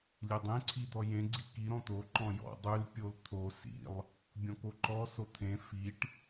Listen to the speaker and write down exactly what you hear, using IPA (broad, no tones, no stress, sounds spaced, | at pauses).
lʲ e dˤ ẽ ǀʰ i d̪ ɔ j ẽ ɡ͡ǀ i k i ɾ ɔ̃ t̪ o ǃ ɔ̃ j ɔ̰ dˤ ʉ l pʲ o l t̪ʰ o s ḭ lˠ | bʲ ɔ̃ k o ǃ ɔ s o t̪ʰ ẽ f i ʈ